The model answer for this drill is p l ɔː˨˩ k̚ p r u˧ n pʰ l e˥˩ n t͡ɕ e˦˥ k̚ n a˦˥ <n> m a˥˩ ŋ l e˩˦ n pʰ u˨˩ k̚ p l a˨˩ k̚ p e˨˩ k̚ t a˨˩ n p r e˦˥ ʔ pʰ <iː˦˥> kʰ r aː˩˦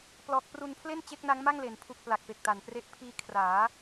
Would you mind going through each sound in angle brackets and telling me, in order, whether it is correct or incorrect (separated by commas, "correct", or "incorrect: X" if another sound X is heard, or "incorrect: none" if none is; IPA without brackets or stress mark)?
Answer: incorrect: ŋ, correct